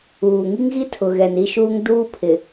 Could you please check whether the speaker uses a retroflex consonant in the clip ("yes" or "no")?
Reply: no